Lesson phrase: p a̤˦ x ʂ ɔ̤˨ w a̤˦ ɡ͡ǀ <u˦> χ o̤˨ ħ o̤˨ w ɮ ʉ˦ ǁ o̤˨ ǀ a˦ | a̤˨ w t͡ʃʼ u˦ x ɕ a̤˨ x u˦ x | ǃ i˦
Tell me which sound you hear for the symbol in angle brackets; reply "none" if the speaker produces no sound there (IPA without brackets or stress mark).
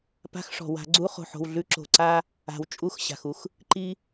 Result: u˦